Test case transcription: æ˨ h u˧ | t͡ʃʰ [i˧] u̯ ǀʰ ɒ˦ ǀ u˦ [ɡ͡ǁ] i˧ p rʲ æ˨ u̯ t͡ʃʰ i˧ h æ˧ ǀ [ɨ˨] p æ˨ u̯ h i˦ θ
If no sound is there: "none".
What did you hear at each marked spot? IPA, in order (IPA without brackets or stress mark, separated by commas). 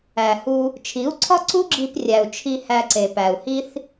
i˨˦, ɡ͡ǁ, e˨